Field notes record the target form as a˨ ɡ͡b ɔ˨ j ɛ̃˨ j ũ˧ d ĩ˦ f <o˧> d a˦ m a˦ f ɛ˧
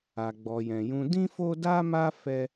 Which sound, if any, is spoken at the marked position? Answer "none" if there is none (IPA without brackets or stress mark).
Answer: o˦